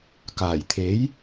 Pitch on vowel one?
low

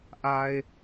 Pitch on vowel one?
low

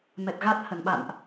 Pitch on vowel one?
low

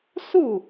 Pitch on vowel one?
falling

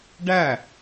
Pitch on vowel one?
falling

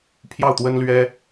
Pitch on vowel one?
falling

